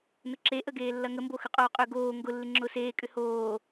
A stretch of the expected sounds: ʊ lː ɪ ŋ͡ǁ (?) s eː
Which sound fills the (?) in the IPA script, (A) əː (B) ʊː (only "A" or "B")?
B